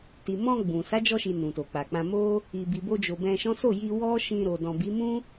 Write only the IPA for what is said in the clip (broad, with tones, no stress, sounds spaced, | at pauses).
t i˨ m ɔ̃˧ ɡ͡b ũ˨ s a˨˦ d͡ʒ ɔ˧ ʃ i˨ n ũ˨ t o˨ k͡p a˨ k͡p ã˧ m o˦ | i˨ b i˨ b o˧ d͡ʒ o˨ b ɛ̃˧ ʃ ɔ̃˦ s o˦˨ j i˧ w ɔ˦ ʃ ĩ˧ ɾ o˨ d ɔ̃˨ b i˨˦ m ũ˦